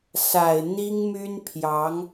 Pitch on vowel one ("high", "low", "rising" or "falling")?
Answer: low